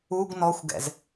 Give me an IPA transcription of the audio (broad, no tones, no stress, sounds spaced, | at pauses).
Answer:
u ɡ n ɔ xʷ ɡ ɛ̰ z